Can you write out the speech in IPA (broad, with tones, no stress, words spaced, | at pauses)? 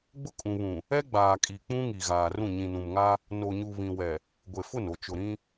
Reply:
ɡ͡bʊ˦kʼũ˨βũ˨ | ɛ˦ɡ͡baː˨kʼi˨ k͡pũ˦ŋi˨ ɣaː˨rũ˦˨ ɲĩ˨nũ˨mŋa˦ | no˨ɲu˨ βĩ˨wɛ˨ | ɡʷe˨fʊ˦˨no˨ t͡ʃʊ˨ɾĩ˦